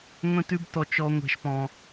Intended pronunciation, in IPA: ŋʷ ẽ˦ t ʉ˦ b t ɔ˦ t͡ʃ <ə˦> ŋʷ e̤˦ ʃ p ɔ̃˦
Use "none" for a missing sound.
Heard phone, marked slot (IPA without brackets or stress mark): ɔ˦